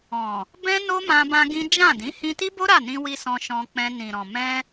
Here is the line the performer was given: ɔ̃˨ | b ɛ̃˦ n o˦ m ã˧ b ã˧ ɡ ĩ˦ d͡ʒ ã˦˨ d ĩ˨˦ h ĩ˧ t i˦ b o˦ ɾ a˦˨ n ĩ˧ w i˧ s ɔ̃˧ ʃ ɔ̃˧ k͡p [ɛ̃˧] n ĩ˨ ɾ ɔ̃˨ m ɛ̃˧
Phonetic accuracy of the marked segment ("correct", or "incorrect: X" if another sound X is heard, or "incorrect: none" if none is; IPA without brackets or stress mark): correct